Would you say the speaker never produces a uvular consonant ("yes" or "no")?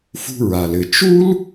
yes